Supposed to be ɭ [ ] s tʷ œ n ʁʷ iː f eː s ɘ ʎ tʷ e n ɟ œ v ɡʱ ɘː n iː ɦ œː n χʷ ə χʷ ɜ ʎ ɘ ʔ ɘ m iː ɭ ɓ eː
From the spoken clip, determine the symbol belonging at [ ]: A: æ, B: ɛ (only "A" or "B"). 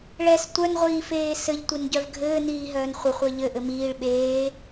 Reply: B